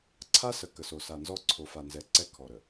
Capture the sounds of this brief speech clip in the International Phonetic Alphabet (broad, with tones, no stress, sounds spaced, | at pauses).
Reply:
ǀʰ a˦ s ə˨ k ə˨ s o˨ s a˨ n z ɔ˦ ǀʰ o˨ f a˨ n z ɛ˨ ǀ ɛ˦ kʰ ɔ˨ ɾ ə˨